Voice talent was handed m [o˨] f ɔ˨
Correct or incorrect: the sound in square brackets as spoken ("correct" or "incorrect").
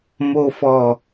correct